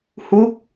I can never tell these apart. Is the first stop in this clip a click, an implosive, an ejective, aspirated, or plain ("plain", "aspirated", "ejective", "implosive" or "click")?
plain